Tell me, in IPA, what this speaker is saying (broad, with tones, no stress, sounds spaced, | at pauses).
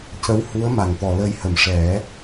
c ə˧˥ w h u˧˥ ə̯ m a˨˩˨ n t̪ ɔ˨˩ l ə˧ j h ə˨˩˨ m ʂ ɛ˨˩˦